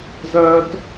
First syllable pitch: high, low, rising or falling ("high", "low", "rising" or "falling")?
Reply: high